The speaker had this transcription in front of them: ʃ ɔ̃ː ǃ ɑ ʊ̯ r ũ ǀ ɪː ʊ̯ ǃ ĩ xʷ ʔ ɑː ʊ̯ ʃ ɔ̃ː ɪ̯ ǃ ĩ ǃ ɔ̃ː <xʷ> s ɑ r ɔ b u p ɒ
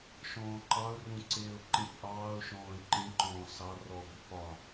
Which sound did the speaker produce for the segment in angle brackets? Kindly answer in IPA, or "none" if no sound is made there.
none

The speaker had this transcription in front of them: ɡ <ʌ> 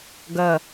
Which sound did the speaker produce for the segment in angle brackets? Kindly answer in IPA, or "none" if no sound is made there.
ʌ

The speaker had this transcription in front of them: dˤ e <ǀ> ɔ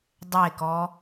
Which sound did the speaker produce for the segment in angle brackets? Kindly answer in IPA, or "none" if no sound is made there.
k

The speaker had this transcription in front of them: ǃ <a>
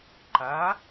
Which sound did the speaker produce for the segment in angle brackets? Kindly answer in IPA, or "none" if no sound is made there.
a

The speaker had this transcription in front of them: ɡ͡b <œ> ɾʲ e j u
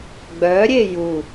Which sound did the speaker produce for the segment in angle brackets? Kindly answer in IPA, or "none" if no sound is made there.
œ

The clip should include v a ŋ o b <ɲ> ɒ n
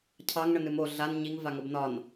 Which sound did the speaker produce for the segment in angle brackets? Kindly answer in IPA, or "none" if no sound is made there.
n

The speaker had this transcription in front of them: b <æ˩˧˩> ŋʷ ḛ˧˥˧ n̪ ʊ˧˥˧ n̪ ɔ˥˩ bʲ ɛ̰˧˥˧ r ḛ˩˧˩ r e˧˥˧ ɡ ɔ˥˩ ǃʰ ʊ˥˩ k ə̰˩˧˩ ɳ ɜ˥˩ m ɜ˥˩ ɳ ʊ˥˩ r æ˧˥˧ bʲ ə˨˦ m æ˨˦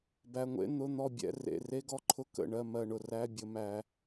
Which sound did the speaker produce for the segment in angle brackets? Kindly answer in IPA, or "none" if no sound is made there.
æ˩˧˩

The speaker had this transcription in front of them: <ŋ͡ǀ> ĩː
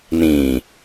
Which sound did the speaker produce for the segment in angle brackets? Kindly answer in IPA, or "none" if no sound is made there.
n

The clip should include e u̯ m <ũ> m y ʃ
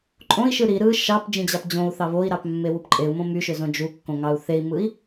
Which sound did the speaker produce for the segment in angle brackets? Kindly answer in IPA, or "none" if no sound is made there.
õ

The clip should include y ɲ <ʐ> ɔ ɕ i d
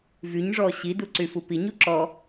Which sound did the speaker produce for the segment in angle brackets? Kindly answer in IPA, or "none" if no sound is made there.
ʐ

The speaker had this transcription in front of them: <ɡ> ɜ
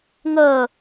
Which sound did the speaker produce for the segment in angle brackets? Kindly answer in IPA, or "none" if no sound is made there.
ŋ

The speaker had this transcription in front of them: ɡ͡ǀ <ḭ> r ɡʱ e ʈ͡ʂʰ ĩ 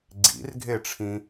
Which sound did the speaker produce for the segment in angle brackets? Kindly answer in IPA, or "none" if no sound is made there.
ḭ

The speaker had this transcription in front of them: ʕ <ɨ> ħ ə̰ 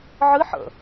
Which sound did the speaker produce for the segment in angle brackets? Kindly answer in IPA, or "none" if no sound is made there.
ɨ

